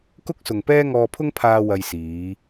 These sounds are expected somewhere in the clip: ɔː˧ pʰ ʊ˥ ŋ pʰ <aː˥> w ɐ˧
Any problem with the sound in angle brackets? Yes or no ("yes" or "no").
yes